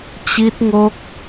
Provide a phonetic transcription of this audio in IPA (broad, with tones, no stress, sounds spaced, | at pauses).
t͡ɕ i˦˥ t̚ ŋ o˦˥ k̚